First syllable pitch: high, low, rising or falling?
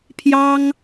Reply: high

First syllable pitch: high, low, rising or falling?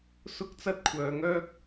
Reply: high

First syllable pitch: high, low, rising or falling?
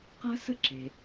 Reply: high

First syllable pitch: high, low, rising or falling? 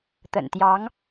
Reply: low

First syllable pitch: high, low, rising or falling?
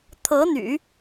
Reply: rising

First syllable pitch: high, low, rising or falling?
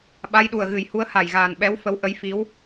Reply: rising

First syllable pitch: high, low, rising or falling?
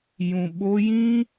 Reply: low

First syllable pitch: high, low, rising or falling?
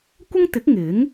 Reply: high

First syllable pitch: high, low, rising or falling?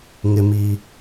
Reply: high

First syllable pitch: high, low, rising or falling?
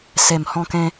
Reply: low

